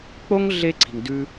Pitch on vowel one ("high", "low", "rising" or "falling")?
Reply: high